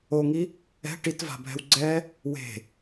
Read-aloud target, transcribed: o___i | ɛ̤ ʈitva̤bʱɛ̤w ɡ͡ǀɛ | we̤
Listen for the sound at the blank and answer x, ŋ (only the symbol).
ŋ